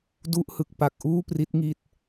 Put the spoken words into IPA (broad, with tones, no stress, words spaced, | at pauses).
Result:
du˦˥ʔhɯ˨˩k̚ pa˨˩k̚ʔuː˥˩pri˦˥t̚ŋi˦˥t̚